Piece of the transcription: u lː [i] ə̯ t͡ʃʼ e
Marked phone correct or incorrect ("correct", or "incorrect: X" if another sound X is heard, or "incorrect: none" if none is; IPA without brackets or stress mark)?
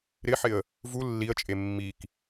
correct